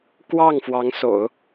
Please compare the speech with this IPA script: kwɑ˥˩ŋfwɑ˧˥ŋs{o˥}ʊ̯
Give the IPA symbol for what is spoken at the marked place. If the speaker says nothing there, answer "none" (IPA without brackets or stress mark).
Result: o̰˨˩˦